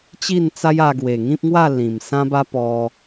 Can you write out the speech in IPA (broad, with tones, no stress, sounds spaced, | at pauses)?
t͡ɕ i˥˧ n t͡s a˦ j a˧ ɡ w e˨˩ ŋ ĩ˦ p̚ ŋ w a˥˧ l ĩ˨˩ m s ã˦ b a˦ p ɔ˧